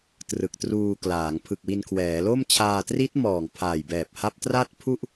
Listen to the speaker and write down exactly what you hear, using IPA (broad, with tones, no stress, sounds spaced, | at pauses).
t r ɯ˨˩ k̚ t r uː˧ k l aː˩˦ ŋ pʰ ɯ˨˩ k̚ w i˧ n kʰ w ɛː˩˦ l o˥˩ m t͡ɕʰ aː˧ t r i˦˥ t̚ m ɔː˨˩ ŋ pʰ aː˨˩ j b ɛː˨˩ p̚ h a˦˥ p̚ t r a˥˩ t̚ pʰ u˥˩ ʔ